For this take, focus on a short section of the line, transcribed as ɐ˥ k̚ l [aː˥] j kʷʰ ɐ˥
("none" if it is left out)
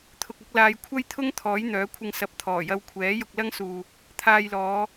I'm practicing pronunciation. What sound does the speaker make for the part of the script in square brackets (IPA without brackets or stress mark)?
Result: aː˧